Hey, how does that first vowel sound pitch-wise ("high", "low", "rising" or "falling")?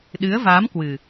rising